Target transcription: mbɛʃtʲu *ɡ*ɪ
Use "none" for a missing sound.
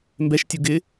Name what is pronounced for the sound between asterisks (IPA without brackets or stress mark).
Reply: ɡ